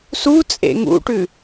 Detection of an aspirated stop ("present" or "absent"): absent